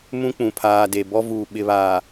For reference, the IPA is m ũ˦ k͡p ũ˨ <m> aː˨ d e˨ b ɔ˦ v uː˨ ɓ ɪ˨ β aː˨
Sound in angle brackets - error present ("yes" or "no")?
yes